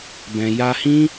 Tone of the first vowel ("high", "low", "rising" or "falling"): low